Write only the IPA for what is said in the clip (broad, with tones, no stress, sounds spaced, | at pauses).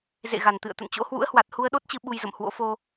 z ḛ˧˨ ɣ a˨˩ n t̪ ɨ̰˧˨ ə̯ t̪ ə̰˧˨ n t͡ɕ o̰˧˥ h w ṵ˧˥ ə̯ h w a˨˩ t̚ h u˧ ə̯ ɗ o˦˥ t̚ t͡ɕ ɨ˨˦ ɓ u˧ j z ə̰˧˨ m h w o̰˧˥ f o˧